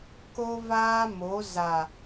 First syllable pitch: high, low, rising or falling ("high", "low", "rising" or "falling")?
high